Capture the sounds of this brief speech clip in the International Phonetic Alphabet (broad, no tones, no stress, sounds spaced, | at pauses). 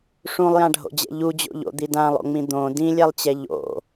ʂ ũ lˠ j ã ɖʱ o̰ d͡ʑ ɛ̰ ʎ u d͡ʑ o̰ ʎ o̰ d̪ i d ã lˠ o̰ ŋ͡m ĩ d̪ õ d ĩ lʲ ɛ lˠ t͡ɕ ɛ ʎ o̰